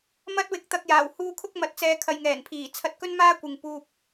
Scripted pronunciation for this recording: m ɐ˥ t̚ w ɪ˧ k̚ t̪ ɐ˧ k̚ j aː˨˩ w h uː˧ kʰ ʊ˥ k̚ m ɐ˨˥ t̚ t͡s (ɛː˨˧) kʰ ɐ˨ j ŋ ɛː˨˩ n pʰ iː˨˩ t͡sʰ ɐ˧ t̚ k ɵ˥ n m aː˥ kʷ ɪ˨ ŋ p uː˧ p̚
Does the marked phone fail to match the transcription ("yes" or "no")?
no